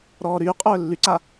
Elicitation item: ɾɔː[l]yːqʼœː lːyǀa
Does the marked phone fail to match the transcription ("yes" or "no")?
yes